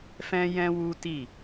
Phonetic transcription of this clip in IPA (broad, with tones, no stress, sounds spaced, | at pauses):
f ɛ̃˦ j ɛ̃˦ w u˦ t i˦˨